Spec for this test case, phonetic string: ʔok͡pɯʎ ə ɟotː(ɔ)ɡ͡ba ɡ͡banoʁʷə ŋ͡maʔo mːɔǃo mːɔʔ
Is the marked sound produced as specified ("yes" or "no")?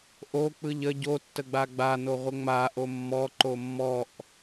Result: no